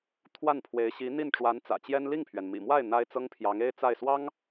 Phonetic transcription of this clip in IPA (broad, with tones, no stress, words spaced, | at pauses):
t̪ʰwa˥˩npʰwe˧˥ɪ̯ ɕi˧˥n̪i˥˩nʈ͡ʂwa˧˥n t͡sä̰˨˩t͡ɕjɛ˥n li˥˩ŋpʰɥɛ˩nmḭ˨˩mwa˥˩ɪ̯ n̪a˥ɪ̯t͡sɤ˥ŋpʰjɑ˧˥ŋ e˥ɪ̯ t͡sa˥˩ɪ̯swɑ˥ŋ